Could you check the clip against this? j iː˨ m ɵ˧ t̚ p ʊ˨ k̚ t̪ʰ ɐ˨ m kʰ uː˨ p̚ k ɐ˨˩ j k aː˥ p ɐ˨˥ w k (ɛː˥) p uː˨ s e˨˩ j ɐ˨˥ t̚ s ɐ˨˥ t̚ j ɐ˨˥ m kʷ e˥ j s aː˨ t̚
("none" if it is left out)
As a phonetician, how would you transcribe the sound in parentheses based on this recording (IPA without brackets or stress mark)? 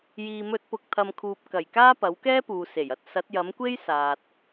ɛː˥